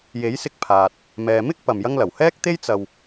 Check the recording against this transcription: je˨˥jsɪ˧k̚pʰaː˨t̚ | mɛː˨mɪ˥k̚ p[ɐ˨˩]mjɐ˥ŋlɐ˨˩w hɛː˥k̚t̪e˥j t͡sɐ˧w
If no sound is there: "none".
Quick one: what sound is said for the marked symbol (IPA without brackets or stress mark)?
ɐ˨